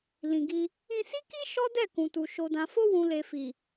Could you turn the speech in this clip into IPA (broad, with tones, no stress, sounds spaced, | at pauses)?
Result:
l ĩ˨ ɡ i˧ | ĩ˧ s i˦ k i˦ ʃ ɔ˦ d ɛ˦˨ k ũ˨ t u˨ ʃ o˨ d ã˨ f o˧ w ũ˨ l e˨ f i˨